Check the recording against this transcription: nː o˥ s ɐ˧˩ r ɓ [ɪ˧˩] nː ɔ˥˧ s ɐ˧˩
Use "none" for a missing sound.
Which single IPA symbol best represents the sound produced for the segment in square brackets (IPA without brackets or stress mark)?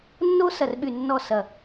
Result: y˧˩